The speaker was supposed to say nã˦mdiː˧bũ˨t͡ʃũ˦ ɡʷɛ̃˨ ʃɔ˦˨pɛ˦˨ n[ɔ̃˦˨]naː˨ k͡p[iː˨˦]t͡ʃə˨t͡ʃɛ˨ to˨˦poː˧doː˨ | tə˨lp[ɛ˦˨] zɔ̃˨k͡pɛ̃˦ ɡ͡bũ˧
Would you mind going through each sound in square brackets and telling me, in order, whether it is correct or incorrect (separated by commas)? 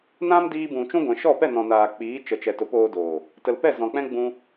incorrect, correct, correct